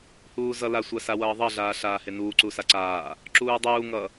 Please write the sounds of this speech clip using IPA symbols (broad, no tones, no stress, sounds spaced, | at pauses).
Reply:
h uː z ʌ l a sʷ a s a w ʌː ðˤ ʌ ɮ aː ɬ aː h e n uː ǀ u s a ǀ aː | ǁ uː dˤ uː ŋ ʌ